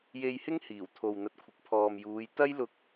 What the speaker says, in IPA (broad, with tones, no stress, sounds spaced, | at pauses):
j e˧ j h ɪ˥ ŋ h iː˨˩ w t̪ʰ o˨ w n̪ ɐ˨ t̚ kʷʰ ɪ˨ k̚ pʰ ɔː˨ m j uː˨˧ j t̪ ɐ˥ j l ʊ˧ k̚